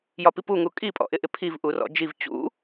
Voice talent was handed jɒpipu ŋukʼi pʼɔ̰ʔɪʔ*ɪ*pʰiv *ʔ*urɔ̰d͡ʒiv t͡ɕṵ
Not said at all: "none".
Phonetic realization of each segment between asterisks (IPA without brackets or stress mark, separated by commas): ɪ, ʔ